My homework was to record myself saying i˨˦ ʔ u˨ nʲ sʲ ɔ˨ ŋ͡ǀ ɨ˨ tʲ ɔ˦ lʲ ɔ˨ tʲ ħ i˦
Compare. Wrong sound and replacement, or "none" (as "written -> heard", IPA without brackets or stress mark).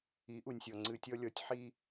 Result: none